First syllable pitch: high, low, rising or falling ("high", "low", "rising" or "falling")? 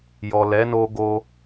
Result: low